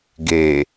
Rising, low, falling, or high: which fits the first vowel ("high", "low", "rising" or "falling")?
low